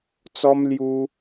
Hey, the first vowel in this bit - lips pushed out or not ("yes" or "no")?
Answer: yes